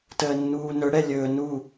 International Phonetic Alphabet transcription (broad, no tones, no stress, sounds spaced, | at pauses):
t əː nː uː n ɵ ɽ ɛ lʲ ɵː n u